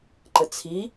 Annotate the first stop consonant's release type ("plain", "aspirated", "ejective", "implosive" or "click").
click